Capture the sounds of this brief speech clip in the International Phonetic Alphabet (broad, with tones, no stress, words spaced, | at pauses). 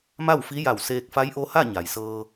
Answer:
ma˥˨wfi˧˥ja˧˩w seː˧k̚fa˧˥jʔo˧˥ha˥˨ ɲa˩jsɤː˧